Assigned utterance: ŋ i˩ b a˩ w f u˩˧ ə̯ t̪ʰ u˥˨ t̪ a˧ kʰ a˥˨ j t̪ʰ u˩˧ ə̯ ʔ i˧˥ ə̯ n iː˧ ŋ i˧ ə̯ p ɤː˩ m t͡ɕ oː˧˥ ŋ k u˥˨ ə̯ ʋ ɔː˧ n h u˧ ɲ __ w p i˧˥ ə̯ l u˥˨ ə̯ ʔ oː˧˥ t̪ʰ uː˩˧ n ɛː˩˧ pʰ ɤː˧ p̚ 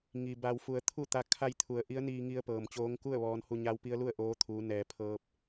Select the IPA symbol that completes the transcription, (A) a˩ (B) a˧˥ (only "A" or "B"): B